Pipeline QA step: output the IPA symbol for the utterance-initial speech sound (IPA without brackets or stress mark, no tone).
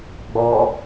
ɡ͡b